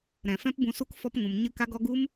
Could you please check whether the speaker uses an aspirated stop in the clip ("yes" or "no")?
no